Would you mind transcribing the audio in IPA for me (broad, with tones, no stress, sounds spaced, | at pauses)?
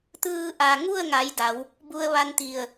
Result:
t̪ ɯː˧ ʔ a˩ ŋ u˥˨ ə̯ ŋ a˩˧ j d a˩˧ w | b u˧ ə̯ ʋ a˧ n t̪ i˧˩ ə̯